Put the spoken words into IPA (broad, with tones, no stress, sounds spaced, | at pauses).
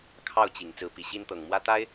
kʰ ɑ˥˩ ʊ̯ t͡ɕ i˨˩ ŋ t͡s ɹ̩˧˥ p i˨˩ ɕ i˥ n t̪ ɤ˨˩ ŋ m w ä˥ t̪ a˥ ɪ̯